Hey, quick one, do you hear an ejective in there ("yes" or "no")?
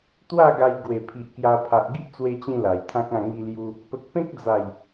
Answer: no